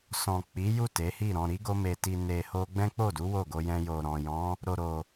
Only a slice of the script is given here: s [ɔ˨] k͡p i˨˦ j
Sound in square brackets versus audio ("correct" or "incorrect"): incorrect